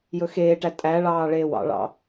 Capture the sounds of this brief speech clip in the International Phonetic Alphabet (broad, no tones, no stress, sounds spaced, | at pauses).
j ɵ x eː ʈ æ tʼ æ ɭ ɑː ɭ eː w ɑ̰ ɭ ɑ̰